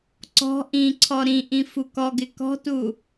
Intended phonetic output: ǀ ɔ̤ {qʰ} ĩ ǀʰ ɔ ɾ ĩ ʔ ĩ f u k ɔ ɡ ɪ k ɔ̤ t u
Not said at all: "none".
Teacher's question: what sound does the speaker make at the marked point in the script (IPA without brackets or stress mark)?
ʔ